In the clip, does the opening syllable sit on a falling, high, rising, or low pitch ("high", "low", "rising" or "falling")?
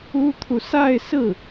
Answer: high